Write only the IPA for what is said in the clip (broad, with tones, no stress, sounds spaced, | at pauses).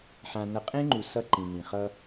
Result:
ħ ã˨ n ʌ˨ qʼ ẽ˦ ŋ͡ǃ u˨ s ʌ˦ ǃ ĩ˨ n ĩ˨ χ ʌ˦